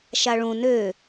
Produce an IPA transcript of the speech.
ʃ a ɭ ũ n ø

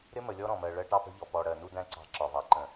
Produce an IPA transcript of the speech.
ɾ ɪ˦ m ə˨ lʲ ɔ˦ ɾ ɔ̃˨ m ɜ˨ ɭ ɜ˦ ʈ ɑ˦ p ə̤˦ ʎ ɔ˨ p ɔ˨ ɽ ɜ˨ n u˦ d æ̃˦ ǀ ɑ̤˦˨ ǁ ɒ˨ v ɑ˨ ǃ ə̃˨

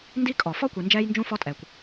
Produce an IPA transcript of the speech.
n d i˦ kʼ ɔ˩ f ɔ˥ kʷ i˨ n d͡ʒ ɛː˦ j n d͡ʒ ũ˦ f ɔ˥ tʼ ɛː˨ kʷ

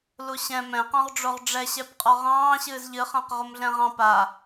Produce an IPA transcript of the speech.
l u ɕ ɛ̃ m ɛ̃ q ɔ̃ ʁ ɖ͡ʐ o ʁ ɖ͡ʐ ɛ ɕ ɛ p qʼ ɔ ʁ ɑ̃ː ɕ ɨː z ʎ ɨ χ ã q ʁ o m ɮ ɛ̃ ʁ ɑ̃ p a

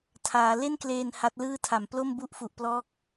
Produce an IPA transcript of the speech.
tʰ aː˩˦ l e˥˩ n k l eː˧ n h a˦˥ t̚ l ɯː˥˩ tʰ a˨˩ m p l o˥˩ m b u˥˩ ʔ f u˨˩ ʔ p l ɔː˦˥ k̚

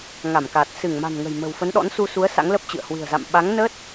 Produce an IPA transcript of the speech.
ŋ a˧˩ m k aː˨˩ t̚ s ɨ˧˩ ŋ m a̤˨˩ n ŋ ə̤˨˩ j m ə̤˨˩ w f ə˨˦ n ɗ ɔ̰˧˥ n s u˧ s u˨˦ ə̯ s a̰˧˥ ŋ l ə˦˥ p̚ t͡ɕ ɨ̰˧˨ ə̯ h w ɨ̤˨˩ ə̯ z a̰˧˨ m ɓ a˨˦ ŋ n ə˦˥ t̚

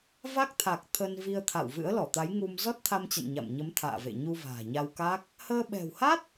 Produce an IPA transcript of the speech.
v a˦˥ k̚ t̪ʰ a˨˩ k̚ t̪ʰ ə˧ n v i˧ ə̯ t̪ʰ a̰˧˨ w v ɨ̰˧˥ ə̯ l ɔ˧˩ t̪ a˨˦ j ŋ u˧ m z ɔ˦˥ t̚ t̪ʰ a˧ m t͡ɕ ə̰˧˨ n ɲ a̰˧˨ m ɲ ə˨˦ m t̪ʰ a̰ː˧˨ v ḛ˧˨ ɲ u˧ v a̤ː˨˩ ɲ a˧ w k a˦˥ k̚ | h əː˧ ɓ ɛ̤˨˩ w h a˦˥ t̚

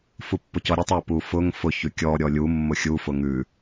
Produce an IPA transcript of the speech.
f u pː ʊ c ɔ ɾʲ ə tˤ ə p u f ʊ ŋ f ʊ ç ʉ kʲ ɔ ɾʲ ɔ lʲ u mː ʊ xʲ u f ʊ ŋ ʉ

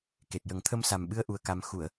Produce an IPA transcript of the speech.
k e˨˩ t̚ j ə˨˩˦ ŋ t̪ʰ ə˧ m s a˨˩ m ɓ ɨ˧ ə̯ ʔ u˧ ə̯ k a˧ m x u˨˩˨ ə̯

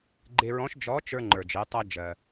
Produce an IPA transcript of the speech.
ɡ͡ǃ e˧ ɹ ɔ̃˧˥ ʃ d͡ʒ ɔ˧˥ t͡ʃ ə˞˧ ŋ͡ǃ ə˞˩ d͡ʒ e˩˧ tˤ ɜ˧ d͡ʒ ɜ˩

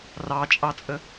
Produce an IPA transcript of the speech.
r ɑ t͡ʃʼ ɑ t͡sʼ ə

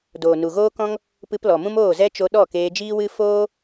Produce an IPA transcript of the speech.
d oː˨ n u˨ ɣ oː˦ k ɔ̃˦ ŋ | p ɨ˧ p l ɔ˨ m ũ˦ m oː˦˨ z ɛ˦ t͡ʃ o˧ ɗ ɔ˦˨ k eː˧ d͡ʒ iː˦ w ɨ˦ f oː˦

